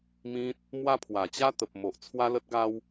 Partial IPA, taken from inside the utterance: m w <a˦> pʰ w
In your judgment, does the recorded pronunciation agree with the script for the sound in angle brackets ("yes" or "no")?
yes